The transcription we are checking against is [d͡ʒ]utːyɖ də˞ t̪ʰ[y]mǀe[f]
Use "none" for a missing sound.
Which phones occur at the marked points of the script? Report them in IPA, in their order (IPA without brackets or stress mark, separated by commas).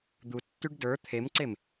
d̪, e, m